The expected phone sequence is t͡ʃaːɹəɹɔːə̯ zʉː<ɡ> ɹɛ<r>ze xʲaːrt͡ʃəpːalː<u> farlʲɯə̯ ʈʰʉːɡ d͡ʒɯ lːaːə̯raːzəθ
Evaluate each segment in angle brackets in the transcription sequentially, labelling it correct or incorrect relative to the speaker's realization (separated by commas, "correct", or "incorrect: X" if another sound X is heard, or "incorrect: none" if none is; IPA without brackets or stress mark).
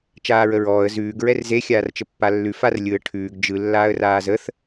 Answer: correct, correct, incorrect: ʉ